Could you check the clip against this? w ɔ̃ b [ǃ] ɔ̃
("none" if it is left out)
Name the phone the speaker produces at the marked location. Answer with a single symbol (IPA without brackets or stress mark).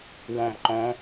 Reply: ǃ